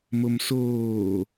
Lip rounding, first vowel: rounded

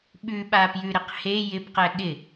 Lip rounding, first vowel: rounded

